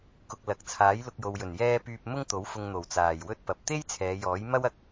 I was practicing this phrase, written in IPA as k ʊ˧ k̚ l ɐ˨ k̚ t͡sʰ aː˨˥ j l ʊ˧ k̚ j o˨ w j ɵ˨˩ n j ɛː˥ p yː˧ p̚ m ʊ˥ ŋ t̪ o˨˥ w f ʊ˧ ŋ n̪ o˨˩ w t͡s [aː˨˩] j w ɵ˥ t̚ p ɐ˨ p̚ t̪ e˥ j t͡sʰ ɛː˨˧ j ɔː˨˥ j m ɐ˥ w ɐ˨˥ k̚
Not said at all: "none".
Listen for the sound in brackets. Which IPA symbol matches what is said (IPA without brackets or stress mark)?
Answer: aː˨˩